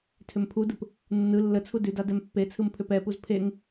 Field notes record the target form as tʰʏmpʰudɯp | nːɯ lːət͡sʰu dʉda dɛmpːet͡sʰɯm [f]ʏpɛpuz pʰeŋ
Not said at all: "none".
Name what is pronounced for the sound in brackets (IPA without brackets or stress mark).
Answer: pʰ